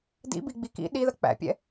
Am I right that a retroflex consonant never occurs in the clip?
yes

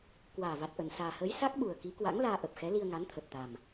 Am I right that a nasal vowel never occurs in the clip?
yes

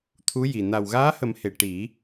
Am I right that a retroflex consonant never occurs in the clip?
no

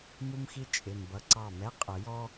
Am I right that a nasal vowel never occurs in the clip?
yes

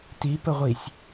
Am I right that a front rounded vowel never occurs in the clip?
yes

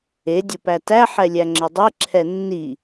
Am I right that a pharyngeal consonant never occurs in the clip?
no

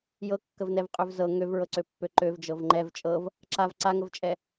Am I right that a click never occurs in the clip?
no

